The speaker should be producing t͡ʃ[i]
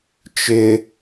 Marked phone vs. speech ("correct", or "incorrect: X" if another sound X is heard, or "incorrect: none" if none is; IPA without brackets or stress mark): incorrect: ɪ